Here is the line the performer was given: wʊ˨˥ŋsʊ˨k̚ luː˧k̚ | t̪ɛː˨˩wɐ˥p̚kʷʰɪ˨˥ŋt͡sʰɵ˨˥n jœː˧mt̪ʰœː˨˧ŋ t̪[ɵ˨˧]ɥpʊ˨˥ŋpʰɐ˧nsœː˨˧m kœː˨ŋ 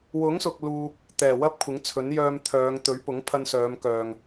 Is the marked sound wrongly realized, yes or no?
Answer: yes